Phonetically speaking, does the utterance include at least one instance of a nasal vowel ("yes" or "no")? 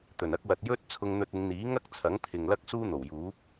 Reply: no